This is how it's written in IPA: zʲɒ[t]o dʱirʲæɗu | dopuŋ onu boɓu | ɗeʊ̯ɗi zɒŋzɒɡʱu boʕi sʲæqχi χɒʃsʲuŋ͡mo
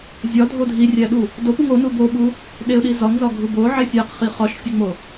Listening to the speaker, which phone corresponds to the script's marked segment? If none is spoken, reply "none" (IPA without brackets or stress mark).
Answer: dʱ